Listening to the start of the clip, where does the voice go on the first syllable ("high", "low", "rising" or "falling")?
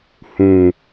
low